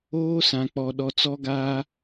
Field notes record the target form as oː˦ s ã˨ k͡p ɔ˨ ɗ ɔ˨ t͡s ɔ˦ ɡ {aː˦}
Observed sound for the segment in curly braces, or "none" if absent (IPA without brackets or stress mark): aː˦